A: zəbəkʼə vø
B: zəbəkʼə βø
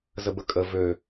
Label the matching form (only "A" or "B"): A